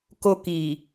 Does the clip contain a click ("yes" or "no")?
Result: no